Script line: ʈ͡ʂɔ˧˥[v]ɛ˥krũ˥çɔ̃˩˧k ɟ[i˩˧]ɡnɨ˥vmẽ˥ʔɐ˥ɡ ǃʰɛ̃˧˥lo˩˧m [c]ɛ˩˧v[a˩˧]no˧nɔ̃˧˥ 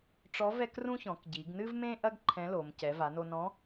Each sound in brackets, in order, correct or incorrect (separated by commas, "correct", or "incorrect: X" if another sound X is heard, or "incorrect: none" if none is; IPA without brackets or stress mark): correct, correct, correct, correct